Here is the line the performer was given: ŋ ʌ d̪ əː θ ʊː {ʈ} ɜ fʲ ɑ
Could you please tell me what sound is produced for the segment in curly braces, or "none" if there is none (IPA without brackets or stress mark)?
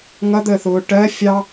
ʈ